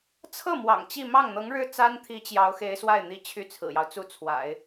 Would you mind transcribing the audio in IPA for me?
t͡sʰ ɤ˥˩ m w ɑ̰˨˩ ŋ t͡ɕ i˥˧ m ɑ˥˩ ŋ n̪ ɤ˧˥ ŋ ɻ ɻ̩˥˩ t͡s a˥ n t̪ʰ i˧˥ t͡ɕ j ɑ˧˥ ʊ̯ x e˧˥ ɪ̯ s w a˥˩ ɪ̯ n̪ i˧˥ t͡ɕʰ y˥˩ t͡sʰ ɹ̩˨˩ j ɑ˦ ʊ̯ t͡s u˥˩ t͡sʰ w a̰˨˩˦ ɪ̯

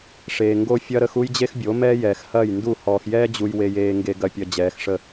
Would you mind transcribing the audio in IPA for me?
ʂ eː˨ ŋ ɡ o˦ fʲ ɐ˦ ɾ ə˦ x u˦ j d͡ʑ e˦ x bʲ o˨˦ m ɛː˦ j ɛː˨ x h ɐː˦˨ j n d u˦˨ h ɔː˨ x j ɛː˦ d͡ʑ u˨ j w e˨ j eː˨ ŋ ɡ e˨ ɡ ɐ˨ pʲ ɐ˨ d͡ʑ ɛː˨˦ x ʂ ə˦

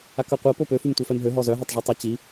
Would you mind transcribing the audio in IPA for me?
a k œ qʷ ɛ p o p ø f y m tʷ œ f ɛ m ɦ ø ɦ ɔ z œ ɦ ɛ tˤ ʐ u tˤ i t͡ɕ i

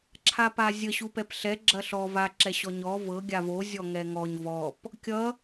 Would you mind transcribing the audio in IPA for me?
ǁʰ a p a zʲ ə ɕ u p ɛ p ɬ ɛ ɡ͡ǁ ɐ ɬ ɔ v a ǁ ɛ ɕ ɔ ɲ ɔ v ɤ ɡʲ a v o zʲ ɔ ŋ ɛ ŋ ɔ ɲ v ɔ p | kʲ ʌ

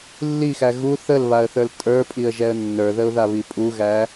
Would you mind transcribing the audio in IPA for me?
lː i x æ ɣ u θ ə l β a ə̯ θ ə˞ l tʼ ə˞ pʼ i ə̯ ʒ ɛ ə̯ nː ə˞ ð ə ʊ̯ ð a β i pʼ u ɣ æ

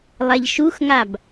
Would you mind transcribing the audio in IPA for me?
lˠ ɛ ʎ ʃ u x ŋ a b

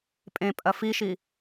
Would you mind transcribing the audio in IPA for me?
pʼ ẽ pʼ ɐ f i ʃ i

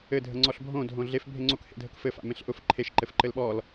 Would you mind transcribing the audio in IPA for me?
ɘ dʱ ə ŋ͡ǀ ɔ ɬ bʱ õ dʱ õ ɮ e f bʱ e ŋ͡ǀ o k h ḛ dʱ ə k f ɘ f a̰ m ẽ ɬ ʔ ʊ f ǃʰ e ʃ ǃ ɘ f ǃ ɘ l ɓ ɔ l

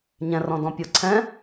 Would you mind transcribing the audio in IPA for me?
ɲ ɛ̃ r ɔ̃ d ɔ̃ pʲ o ǀʰ ɛ̃

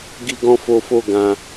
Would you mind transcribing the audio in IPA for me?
ɡ i˧ ɡ ɔ̃˧ f o˧ f o˧ ɡ ã˧

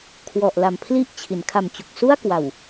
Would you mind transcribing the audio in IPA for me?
kʰ w ɔ˨˩ ʔ l a˨˩ m pʰ l i˥˩ ʔ t͡ɕʰ i˩˦ n kʰ a˨˩ m t͡ɕ u˨˩ k̚ s u˥˩ a̯ k w a˨˩ w

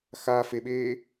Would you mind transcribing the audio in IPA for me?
x a f e ɓ eː

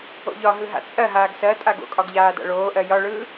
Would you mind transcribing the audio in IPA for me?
o̰ ʎ ɒ ɦ ɯ ɦ a̰ t͡sʼ ɜ ɦ aː ɡ s ɜ tʼ a ɡ o̰ kʼ ɒ ɡ ʎ aː d a̰ ɭ oː ʔ ɜ j ɒ ɭ ɯː

